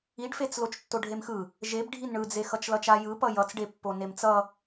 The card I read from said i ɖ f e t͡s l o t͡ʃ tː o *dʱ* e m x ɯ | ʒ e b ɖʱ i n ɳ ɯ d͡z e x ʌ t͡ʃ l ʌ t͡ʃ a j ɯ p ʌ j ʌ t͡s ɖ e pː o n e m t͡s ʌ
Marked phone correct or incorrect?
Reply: incorrect